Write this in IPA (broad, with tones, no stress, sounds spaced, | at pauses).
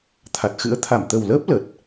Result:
t̪ʰ a˨˩ t̚ x ɨ̰˧˥ ə̯ t̪ʰ a˧˩ m t̪ ə˨˩ w l əː˦˥ p̚ l ə˨˩ t̚